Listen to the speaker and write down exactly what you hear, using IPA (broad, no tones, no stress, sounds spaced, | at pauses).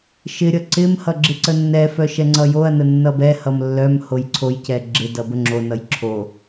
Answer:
ʃ ɪ ɾʲ ʌ ǀ ɪ m h ʌ ɡ͡ǁ ɪ ǀ ə nː ɛ f œ ʃ ɛ ŋ͡ǀ ʌ j o ɐ̯ n ə nː ʌ b ɛ h ʌ m lː œ m h o j ǀʰ o j c ɛ ɡ͡ǁ ɪ d ʌ b ə ŋ͡ǁ o n ʌ j ǁʰ o